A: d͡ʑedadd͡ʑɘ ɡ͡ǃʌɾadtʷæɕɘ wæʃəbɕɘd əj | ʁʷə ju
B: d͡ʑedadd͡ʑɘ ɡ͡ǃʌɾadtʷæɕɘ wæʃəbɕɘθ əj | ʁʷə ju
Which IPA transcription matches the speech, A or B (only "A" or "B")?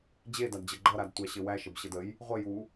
A